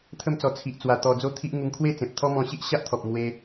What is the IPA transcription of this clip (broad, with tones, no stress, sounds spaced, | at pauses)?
t̪ʰ ə˥˧ m t͡s ɔ˧ t͡sʰ i˨ ʔ t͡s w a˧ t̪ ɔ˧ d͡z o˥˧ t̪ʰ i˦ ʔ ŋ u˧ ŋ kʰ w e˥˧ t͡s ẽ˨ p̚ t̪ʰ ɔ˦ m ɔ̃˧ ɕ i˦ ʔ ɕ a˦ ʔ t̪ʰ ɔ˨ p̚ m w e˧